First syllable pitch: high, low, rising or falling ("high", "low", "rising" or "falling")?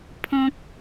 high